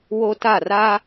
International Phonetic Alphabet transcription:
w o˦ t a˦˨ r a˦

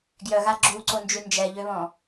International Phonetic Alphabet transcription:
ɡ j œ ɣ a ɡ͡ǁ u ǀ o n d͡ʒ y n d͡ʒ ɛ ʎ ø β ɔ̃

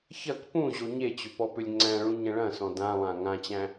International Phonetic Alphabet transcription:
ç ɐ k p ũ ʑ o ɲ e t͡ɕ ʏ p ɔ p ʏ lʲ ŋ͡ǀ æ̃ ɭ ũ ɲ ɐ̃ ɭ ɐ̃ s ɔ̃ d ã lˠ ã ŋ ã t͡ɕ æ̃

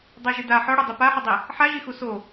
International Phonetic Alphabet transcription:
dˤ ɛ ʒ ɨ d a ħ ɔ ɽ o dˤ i p a ħ ɘ dˤ i | ħ a ʒ i x u s o

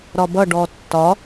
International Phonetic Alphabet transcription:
ɾ ɒ b ʌ ɖ ɔ tː ɒ

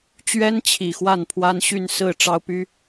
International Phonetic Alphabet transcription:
t͡ɕ ɥ ɛ˥ n t͡ɕʰ i˨˩ x w a˥˩ n pʰ w a˥ n ɕ y˥˧ n s ɹ̩˥˩ ʈ͡ʂ ɑ˥ ʊ̯ p y˥

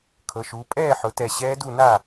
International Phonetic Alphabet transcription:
kʰ ɤ˩˧ ʃ uː˩˧ pʼ ɛː˥˩ ħ ʊ˩˧ t ɛ˧˩ ɕ ɛː˧˥ d u˥˩ n a˥˩

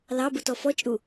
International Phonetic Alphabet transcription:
l ɑ b u t ɔ f ɔ t͡ʃʼ u

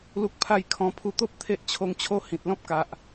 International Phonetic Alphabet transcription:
l u˦ k̚ pʰ a˥˧ j kʰ ɔ̃˧ pʰ u˧ t̪ o˦ p̚ t̪ʰ e˦ ʔ t͡ɕʰ o˧ ŋ t͡ɕʰ o˥˧ h ĩ˨ t̚ l ɔ̃˦ p̚ k a˨ ʔ

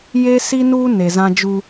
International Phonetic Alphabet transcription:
j e˦ s i˦ n uː˦ n e˨ z ã˦ d͡ʒ u˦

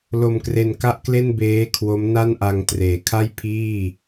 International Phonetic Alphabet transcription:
l o˧ m k r e˧ n k a˥˩ ʔ k l e˥˩ n b eː˦˥ kʰ w o˦˥ m n a˥˩ n ʔ a˧ ŋ t r eː˩˦ kʰ a˥˩ j pʰ iː˥˩

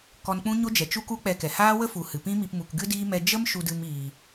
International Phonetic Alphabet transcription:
k ɔ˧ n k͡p ũ˦ ɲ o˦ d͡ʒ ɛ˨ t͡ʃ u˦ k u˦ k͡p ɛ˧ k ɛ˨ h aː˦ w ə˦ f u˨ h ɨ˨ p ĩ˦ m i˧ p m u˨ k ɡ ɨ˦ d iː˦ m ɛ˧ d͡ʒ ə˦ m ʃ u˧ d ɨ˧ m iː˨

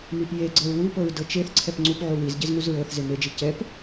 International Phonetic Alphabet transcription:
m i p j e ɡ͡ǀ ɤ ɹ w u p ɤ ɹ d ɤ t͡ʃ e θ ǀʰ ɛ p ŋ͡ǀ u p ʕ u w i z ɟ e z ŋ u z ɹ ɤ θ z e m e d͡ʒ i c ɛ p

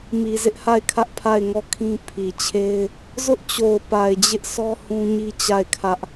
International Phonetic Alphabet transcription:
m i˨ z ɪ˦ ʔ h a˦˨ ɪ̯ kʰ ä˦ ʔ pʰ a˦˨ ɪ̯ ŋ ɔ˦˨ kʰ ĩ˦ pʰ i˨ t͡ɕʰ e˦ ɪ̯ | z ʊ˦ ʔ t͡ɕ o˨ ʊ̯ p a˨ ɪ̯ d͡ʑ ɪ˦ ʔ sʰ ɔ˦ h ũ˦ ɲ i˦ t͡ɕ a˦˨ ɪ̯ kʰ ä˦ ʔ

